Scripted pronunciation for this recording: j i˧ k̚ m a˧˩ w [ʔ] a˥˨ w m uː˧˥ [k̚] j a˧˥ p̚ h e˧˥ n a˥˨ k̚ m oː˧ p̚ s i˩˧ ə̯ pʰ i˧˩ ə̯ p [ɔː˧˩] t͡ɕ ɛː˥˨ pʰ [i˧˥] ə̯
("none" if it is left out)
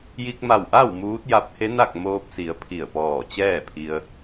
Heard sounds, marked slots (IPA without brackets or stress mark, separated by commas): ʔ, t̚, ɔː˧˩, i˧